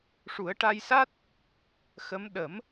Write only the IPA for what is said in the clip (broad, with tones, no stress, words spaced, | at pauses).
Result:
ʂu˨˩˦ə̯ʈa˧jsa˦˥t̚ | xə˧˥m ɗə˨˩˦m